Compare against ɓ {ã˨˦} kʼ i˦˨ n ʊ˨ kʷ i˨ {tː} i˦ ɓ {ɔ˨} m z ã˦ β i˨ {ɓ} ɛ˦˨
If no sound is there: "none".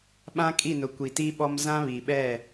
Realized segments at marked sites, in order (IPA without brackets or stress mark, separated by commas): ã˦, t, ɔ˦, ɓ